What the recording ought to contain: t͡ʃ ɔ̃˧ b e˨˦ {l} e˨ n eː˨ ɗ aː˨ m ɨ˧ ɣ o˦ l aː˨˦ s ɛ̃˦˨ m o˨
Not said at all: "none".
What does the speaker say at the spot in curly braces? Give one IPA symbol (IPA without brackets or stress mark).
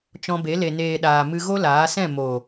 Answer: l